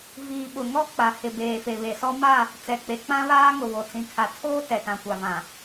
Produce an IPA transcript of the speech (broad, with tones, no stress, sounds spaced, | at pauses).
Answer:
v iː˨ ɓ ʊ˨ ŋ ɔ˦ k͡p a˨ h ɪ˨ b eː˨ f e˨ β e˨ s ɔ˦ m a˦˨ | t͡s ɛ˨ k͡p e˨ k͡p ã˦ β aː˦ ŋ ʊ˨ β o˨ t͡s ĩ˨ kʰ a˨ tʰ oː˦ t ɛ˨ t ã˨ kʷ a˨ v ã˨